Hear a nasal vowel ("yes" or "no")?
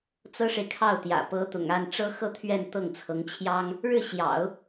no